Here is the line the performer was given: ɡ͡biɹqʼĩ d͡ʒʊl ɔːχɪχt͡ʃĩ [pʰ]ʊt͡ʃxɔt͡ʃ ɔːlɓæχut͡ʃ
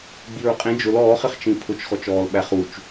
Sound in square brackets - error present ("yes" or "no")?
no